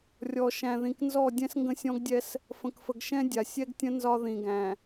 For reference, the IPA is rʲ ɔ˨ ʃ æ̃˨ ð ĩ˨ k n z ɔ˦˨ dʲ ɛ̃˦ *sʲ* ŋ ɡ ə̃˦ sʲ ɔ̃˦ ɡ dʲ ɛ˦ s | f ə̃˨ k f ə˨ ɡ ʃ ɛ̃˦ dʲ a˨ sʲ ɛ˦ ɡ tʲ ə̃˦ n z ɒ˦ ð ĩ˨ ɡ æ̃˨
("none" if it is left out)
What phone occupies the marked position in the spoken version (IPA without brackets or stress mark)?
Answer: s